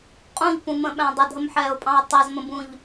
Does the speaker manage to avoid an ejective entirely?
no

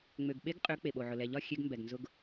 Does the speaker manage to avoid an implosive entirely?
no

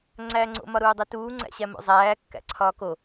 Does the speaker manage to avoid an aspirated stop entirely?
no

